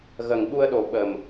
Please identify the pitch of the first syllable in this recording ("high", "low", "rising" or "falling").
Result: low